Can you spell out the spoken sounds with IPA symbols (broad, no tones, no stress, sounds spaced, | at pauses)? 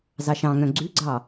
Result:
z ɑ ʃ ɑ̃ ŋ œ̃ ɡ͡ǀ ʉ ɡ͡ǀ ɑ